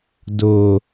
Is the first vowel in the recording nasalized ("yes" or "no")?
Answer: no